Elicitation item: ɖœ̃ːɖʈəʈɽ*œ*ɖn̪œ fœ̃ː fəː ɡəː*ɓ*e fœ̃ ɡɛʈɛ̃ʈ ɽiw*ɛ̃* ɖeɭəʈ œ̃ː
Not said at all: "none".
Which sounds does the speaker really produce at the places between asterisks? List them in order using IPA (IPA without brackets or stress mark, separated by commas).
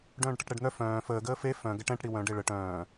ɛ, f, œ̃